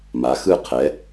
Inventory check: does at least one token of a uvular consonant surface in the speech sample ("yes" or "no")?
yes